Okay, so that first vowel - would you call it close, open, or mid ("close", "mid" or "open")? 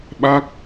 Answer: open